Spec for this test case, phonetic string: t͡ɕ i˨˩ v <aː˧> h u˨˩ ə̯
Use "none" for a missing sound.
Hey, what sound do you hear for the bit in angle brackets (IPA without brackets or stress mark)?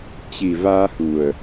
aː˧